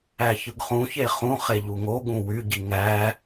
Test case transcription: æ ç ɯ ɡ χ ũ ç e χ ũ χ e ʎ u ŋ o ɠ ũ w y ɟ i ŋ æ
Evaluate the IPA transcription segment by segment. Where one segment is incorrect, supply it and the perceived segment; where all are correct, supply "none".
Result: none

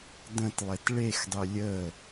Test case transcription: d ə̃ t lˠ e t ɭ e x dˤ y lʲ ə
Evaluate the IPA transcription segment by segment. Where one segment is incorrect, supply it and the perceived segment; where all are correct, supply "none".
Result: none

